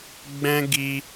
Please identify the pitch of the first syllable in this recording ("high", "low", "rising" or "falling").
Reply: high